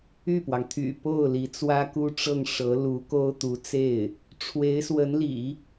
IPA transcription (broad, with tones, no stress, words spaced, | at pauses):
y˥˩pwɑ˩ŋ t̪ʰy̰˨˩ po˥˩ʊ̯ li˧˥t͡swä˥ku˥ʈ͡ʂɤ˥˩ŋ ʂɤ˧˥ lu˧˥ko˥ʊ̯t̪u˧˥t͡se˥˩ɪ̯ | ʈ͡ʂʰwe˧˥ɪ̯swə˧˥nlḭ˨˩˦